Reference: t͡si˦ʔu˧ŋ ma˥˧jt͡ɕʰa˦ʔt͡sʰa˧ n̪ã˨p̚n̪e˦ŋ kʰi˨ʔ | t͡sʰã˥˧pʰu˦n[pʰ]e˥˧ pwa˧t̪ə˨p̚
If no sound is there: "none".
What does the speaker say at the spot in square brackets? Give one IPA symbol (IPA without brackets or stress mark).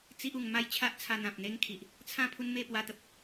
m